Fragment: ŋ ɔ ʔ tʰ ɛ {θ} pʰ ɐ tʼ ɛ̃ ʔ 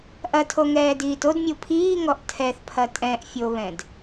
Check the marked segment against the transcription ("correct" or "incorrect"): correct